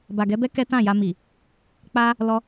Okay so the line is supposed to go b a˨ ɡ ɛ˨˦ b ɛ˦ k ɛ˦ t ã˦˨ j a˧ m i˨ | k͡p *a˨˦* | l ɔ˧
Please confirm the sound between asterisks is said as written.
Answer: no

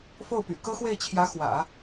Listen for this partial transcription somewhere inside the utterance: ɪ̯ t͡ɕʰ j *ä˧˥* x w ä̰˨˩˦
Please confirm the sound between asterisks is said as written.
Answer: yes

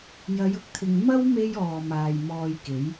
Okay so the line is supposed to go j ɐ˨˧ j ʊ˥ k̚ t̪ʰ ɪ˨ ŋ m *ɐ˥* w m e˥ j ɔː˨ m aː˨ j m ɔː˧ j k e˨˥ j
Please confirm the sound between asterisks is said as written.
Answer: yes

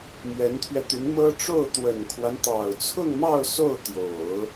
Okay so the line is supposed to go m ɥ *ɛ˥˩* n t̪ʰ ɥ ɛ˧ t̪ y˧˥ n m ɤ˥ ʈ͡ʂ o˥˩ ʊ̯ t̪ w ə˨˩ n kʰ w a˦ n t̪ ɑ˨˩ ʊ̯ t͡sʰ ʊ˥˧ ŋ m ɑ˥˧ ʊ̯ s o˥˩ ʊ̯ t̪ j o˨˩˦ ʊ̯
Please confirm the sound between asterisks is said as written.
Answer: no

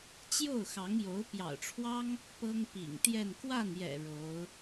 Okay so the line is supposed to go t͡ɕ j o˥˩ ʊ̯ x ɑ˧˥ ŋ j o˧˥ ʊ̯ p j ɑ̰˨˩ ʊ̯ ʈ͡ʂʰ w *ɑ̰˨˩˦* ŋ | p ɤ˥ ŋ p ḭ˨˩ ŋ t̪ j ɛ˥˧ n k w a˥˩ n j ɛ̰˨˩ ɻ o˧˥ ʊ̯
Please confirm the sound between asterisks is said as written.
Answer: no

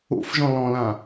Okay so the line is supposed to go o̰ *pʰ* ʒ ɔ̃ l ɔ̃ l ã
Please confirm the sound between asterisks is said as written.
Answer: no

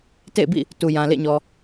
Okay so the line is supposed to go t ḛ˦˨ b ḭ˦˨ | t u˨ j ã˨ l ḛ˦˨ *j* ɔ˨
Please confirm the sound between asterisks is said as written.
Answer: no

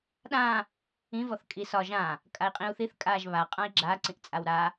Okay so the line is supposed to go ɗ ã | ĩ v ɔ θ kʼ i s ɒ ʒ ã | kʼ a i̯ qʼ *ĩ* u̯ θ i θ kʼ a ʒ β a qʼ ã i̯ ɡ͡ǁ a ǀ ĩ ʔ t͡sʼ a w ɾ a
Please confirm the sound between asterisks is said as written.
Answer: yes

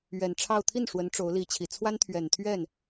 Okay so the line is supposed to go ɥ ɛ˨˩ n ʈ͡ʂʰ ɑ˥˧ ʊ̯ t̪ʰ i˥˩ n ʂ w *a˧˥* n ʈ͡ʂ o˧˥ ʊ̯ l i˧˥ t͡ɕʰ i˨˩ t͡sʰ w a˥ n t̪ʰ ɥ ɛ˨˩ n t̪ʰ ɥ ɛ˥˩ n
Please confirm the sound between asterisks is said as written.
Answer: no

